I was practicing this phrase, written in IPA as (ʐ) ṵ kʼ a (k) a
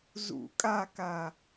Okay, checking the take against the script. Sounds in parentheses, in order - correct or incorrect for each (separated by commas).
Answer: incorrect, correct